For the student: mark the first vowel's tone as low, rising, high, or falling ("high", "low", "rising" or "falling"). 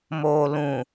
low